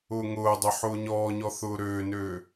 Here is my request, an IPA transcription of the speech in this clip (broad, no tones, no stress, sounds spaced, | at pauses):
ʊː ŋ ʊː dˤ ø ħ ʊː ɲ ɔː ɲ ɔ θ ʊː ɾ øː n øː